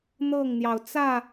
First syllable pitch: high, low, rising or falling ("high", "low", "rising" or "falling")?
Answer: falling